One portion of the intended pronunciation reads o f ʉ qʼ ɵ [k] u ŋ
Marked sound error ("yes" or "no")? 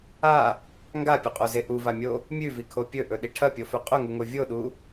yes